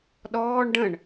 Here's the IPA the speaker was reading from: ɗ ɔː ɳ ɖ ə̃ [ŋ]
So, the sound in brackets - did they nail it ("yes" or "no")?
no